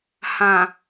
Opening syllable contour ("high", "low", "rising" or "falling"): low